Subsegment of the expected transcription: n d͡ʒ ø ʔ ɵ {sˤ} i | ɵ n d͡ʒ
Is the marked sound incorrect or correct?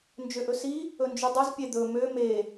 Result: incorrect